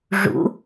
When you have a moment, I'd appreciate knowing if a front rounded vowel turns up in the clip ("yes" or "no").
no